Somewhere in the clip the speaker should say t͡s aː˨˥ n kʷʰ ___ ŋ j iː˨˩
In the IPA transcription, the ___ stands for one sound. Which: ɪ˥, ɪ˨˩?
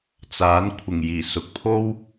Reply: ɪ˨˩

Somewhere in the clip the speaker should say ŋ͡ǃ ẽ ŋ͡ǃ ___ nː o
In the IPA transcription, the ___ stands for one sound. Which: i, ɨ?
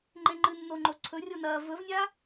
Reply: ɨ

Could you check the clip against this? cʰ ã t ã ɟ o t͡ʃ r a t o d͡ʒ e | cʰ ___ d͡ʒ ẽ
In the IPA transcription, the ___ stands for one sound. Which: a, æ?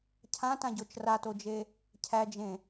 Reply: æ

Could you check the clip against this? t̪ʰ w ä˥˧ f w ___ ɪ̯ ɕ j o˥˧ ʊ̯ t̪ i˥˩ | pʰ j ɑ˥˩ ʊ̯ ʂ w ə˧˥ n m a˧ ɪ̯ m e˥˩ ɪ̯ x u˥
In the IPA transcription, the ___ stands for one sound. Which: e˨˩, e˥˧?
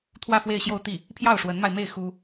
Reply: e˥˧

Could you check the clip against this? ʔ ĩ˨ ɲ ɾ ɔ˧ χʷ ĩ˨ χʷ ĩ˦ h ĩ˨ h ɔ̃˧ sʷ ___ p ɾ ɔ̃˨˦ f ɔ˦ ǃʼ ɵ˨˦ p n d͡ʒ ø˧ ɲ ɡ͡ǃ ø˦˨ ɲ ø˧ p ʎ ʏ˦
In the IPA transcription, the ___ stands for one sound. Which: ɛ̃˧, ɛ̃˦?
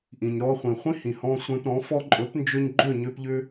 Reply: ɛ̃˧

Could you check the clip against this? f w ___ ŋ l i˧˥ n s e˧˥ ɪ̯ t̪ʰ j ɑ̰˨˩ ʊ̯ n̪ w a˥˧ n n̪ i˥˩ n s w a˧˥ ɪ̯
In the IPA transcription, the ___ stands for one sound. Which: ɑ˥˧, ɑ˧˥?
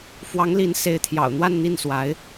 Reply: ɑ˧˥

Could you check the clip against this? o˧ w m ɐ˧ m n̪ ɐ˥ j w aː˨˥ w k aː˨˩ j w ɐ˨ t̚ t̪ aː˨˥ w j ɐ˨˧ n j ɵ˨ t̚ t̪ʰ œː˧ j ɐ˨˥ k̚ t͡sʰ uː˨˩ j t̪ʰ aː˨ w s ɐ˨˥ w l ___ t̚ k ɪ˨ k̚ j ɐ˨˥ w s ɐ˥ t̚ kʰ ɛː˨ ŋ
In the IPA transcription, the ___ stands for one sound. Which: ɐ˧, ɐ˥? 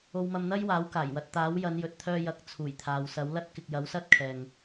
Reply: ɐ˥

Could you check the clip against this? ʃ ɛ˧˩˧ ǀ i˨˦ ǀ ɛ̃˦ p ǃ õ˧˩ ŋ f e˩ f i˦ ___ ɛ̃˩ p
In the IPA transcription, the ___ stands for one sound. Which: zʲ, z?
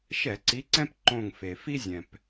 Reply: zʲ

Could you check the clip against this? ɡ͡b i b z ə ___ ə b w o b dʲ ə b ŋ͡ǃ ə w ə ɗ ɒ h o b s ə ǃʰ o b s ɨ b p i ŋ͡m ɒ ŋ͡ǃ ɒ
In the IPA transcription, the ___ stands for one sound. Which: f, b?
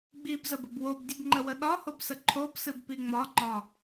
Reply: b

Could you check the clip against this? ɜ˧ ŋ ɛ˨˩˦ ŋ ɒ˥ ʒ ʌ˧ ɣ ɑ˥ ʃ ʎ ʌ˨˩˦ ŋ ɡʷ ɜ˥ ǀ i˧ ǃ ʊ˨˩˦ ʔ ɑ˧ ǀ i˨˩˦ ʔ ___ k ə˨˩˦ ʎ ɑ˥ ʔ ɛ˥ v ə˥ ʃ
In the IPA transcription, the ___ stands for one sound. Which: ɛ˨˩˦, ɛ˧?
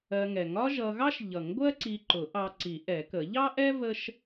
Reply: ɛ˨˩˦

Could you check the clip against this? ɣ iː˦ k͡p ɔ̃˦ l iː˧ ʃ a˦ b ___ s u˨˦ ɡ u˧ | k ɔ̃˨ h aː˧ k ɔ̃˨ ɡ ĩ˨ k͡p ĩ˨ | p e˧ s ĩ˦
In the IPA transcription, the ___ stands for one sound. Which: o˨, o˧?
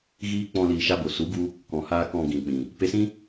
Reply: o˨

